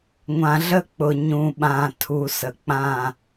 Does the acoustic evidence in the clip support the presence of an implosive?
yes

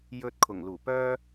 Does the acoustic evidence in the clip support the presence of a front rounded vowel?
yes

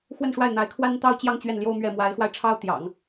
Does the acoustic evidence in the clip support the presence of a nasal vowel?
no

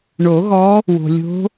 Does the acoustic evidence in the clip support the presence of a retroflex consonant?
yes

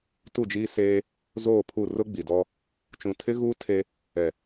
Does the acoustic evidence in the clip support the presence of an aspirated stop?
yes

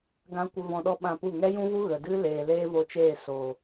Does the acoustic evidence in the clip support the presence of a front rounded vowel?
no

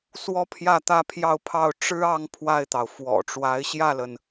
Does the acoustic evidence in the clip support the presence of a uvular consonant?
no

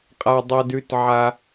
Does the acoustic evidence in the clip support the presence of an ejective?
yes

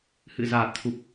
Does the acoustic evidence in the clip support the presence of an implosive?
no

